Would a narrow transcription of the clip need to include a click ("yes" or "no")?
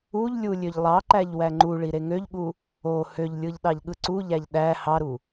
yes